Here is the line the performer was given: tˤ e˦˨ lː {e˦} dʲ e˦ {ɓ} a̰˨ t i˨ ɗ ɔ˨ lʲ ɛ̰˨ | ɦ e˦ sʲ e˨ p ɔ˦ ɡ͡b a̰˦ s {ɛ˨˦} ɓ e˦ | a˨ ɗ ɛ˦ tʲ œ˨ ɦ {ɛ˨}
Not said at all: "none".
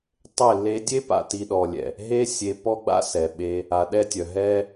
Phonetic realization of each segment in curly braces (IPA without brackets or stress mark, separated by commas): e˦, p, ɛ˨, ɛ˦